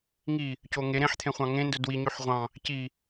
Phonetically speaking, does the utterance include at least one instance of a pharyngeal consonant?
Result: yes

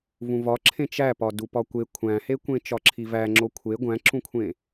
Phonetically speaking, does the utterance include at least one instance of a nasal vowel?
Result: yes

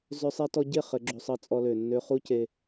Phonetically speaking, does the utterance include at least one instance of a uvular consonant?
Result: yes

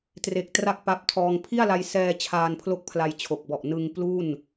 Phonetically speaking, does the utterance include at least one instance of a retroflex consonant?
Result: no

